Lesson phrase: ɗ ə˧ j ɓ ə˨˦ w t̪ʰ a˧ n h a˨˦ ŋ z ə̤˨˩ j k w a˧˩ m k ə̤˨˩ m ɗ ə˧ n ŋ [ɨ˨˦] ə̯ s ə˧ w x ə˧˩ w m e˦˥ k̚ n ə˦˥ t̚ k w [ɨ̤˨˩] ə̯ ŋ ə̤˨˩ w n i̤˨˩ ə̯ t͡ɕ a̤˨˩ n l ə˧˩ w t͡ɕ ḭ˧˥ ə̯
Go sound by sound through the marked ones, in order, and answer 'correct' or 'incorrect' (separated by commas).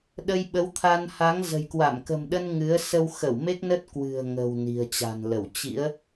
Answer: correct, correct